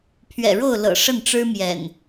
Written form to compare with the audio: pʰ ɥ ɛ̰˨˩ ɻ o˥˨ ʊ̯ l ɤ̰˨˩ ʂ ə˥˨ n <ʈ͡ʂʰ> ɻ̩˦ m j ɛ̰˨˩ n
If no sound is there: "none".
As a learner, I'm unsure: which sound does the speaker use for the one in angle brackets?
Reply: ʈ͡ʂ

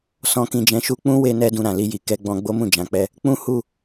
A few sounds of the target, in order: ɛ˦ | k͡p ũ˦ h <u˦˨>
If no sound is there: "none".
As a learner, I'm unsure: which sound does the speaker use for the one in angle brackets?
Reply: u˦˨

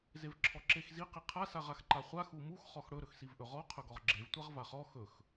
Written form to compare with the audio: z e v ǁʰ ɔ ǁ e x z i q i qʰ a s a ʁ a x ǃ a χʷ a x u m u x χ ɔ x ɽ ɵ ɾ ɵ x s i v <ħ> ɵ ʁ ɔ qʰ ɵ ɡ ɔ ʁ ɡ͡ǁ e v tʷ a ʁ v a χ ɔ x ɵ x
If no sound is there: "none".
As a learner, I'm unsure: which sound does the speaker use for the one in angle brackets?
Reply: ʔ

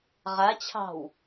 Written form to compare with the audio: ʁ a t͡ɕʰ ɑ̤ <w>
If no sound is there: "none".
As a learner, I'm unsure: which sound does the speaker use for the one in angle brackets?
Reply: w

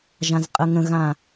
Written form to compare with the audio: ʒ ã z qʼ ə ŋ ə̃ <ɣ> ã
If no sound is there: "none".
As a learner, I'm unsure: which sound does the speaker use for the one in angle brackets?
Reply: ɣ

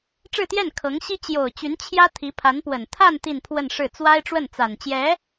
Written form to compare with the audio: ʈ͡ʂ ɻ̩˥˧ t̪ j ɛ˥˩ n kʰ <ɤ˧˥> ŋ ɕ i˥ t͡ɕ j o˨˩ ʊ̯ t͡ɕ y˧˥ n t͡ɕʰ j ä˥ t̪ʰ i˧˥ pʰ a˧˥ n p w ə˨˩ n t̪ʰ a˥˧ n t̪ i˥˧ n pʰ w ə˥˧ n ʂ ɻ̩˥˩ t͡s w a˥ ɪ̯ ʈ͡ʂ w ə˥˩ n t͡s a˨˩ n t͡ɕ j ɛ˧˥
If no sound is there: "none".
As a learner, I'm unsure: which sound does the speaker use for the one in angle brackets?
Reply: ɤ˧˥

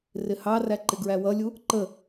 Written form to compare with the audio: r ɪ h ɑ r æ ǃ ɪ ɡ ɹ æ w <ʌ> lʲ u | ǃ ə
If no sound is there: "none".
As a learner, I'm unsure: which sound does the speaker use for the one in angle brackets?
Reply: ʌ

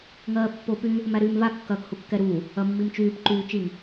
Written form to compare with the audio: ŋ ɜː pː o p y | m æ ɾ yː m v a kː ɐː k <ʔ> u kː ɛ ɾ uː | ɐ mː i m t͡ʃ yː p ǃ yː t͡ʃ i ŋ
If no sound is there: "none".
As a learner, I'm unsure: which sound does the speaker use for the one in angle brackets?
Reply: h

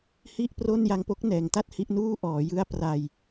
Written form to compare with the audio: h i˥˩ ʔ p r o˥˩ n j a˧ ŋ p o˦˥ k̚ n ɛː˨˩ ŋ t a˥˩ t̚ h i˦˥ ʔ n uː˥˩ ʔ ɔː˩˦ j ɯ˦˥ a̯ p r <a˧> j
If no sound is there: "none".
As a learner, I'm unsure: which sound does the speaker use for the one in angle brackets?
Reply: a˧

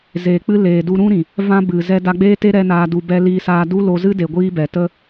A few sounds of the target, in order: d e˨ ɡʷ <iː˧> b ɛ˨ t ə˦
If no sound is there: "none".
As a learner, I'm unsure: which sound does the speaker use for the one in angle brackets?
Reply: iː˦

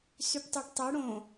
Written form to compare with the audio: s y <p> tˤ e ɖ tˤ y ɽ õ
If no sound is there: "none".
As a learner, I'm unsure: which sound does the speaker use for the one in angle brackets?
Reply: p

